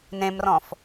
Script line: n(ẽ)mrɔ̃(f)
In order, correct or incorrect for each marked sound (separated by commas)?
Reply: correct, correct